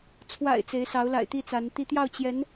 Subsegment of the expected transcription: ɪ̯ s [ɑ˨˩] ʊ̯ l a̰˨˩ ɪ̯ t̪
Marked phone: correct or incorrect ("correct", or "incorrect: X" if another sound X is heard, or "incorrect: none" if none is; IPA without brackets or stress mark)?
incorrect: ɑ˧˥